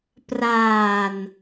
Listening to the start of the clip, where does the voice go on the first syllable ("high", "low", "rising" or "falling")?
low